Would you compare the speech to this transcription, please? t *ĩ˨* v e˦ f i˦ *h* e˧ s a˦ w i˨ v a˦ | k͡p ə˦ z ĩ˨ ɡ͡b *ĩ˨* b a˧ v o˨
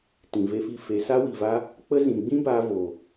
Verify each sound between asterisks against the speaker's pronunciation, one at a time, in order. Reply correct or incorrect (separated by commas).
correct, incorrect, incorrect